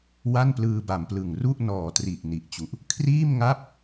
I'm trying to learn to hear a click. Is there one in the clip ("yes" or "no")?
no